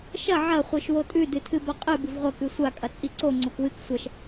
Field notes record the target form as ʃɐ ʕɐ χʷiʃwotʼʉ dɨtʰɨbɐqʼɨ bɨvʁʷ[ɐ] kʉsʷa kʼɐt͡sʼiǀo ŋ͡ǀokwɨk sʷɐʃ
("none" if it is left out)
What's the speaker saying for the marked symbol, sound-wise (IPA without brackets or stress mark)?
ɐ